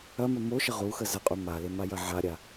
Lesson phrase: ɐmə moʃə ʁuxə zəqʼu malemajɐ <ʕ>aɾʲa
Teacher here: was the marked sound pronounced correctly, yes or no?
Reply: yes